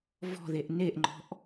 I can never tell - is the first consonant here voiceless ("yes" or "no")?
no